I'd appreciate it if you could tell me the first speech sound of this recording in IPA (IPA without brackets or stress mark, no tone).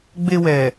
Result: ɡ͡b